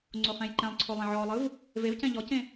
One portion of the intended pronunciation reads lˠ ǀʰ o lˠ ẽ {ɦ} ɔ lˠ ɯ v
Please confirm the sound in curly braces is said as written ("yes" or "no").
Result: no